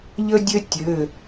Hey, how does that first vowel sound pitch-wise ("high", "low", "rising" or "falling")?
high